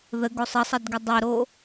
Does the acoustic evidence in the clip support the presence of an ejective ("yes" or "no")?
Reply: no